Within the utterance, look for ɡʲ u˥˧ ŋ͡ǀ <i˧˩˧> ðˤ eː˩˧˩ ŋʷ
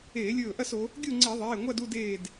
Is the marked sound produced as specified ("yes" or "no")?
yes